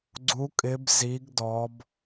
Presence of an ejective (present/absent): present